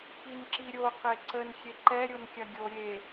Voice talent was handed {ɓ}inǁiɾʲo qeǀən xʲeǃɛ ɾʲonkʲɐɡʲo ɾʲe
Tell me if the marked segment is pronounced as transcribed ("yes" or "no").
no